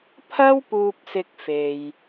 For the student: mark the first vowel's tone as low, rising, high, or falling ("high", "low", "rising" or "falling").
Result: high